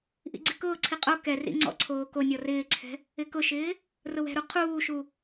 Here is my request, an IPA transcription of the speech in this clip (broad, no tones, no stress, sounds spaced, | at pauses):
ʔ ḭ ɡ͡ǀ ɪ k ʊː ǀʰ i qʼ o k ɛ r ḭ ŋ͡ǀ ɔ̰ ǀʰ oː k o nʲ ɔ r ɪː ǀʰ ɛ̤ | ɪ k ʊ ʃ ɪː | r ʊ w ɛ̤ ɾ u qʰ uː ʃ u